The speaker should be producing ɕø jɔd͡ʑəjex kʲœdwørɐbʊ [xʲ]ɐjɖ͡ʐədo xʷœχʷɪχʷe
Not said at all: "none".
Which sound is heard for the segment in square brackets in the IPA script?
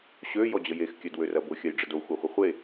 xʲ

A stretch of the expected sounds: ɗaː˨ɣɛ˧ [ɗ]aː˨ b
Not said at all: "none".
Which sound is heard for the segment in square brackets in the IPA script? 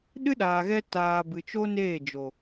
t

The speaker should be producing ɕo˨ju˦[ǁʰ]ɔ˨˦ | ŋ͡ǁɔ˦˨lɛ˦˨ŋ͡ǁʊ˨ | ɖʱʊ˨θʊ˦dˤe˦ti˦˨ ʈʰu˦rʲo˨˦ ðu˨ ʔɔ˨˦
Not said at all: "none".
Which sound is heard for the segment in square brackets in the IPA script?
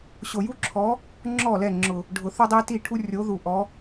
ǁʰ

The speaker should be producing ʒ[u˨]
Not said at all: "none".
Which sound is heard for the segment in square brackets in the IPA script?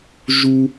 u˥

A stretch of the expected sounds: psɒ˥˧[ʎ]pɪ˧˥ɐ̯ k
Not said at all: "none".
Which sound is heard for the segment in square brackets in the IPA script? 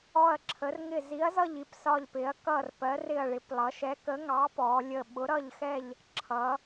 ʎ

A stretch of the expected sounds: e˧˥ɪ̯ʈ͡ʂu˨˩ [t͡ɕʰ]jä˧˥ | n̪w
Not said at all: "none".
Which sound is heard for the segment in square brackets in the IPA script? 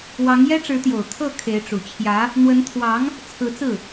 t͡ɕʰ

